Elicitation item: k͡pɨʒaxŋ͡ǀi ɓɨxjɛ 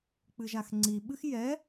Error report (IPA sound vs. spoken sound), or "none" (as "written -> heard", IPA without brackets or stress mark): none